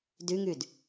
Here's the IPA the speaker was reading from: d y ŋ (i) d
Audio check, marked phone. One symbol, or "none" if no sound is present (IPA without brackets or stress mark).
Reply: y